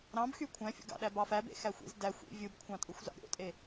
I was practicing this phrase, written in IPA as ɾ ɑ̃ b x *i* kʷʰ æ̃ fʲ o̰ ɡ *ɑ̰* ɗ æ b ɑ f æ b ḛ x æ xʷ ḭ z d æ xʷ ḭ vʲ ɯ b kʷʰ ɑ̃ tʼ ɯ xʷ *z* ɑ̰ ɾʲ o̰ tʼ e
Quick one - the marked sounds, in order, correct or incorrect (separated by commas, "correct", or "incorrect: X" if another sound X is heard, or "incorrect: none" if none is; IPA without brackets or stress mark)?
incorrect: y, correct, correct